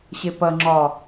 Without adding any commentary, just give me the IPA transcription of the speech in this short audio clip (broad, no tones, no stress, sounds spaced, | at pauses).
ɕ e p ɐ ŋ͡ǁ ɒ